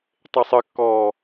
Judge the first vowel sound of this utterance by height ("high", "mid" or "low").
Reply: mid